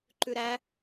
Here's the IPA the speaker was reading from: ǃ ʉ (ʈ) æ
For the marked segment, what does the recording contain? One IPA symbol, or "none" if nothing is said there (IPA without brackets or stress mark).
ɾ